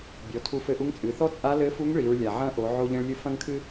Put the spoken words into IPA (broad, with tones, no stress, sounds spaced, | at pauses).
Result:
bʲ ɔ˩˧ tʰ u˧ f ɘ˧ ʔ u˧˥ ŋ t͡sʼ ɨ˩˧ θ ɔ˥ t͡sʼ a˧˥ l ɘ˧˥ f u˧˥ ŋ ɭ i˩˧ ɹ lʲ a˩ ʕ ɐ̃˧˥ ʔ o˩˧ ʕ o˧ ʎ ẽ˧ ɭ lʲ ɨ˧ f ɐ̃˥ ŋ kʰ ɨ˥